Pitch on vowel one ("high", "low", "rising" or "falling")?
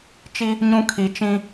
high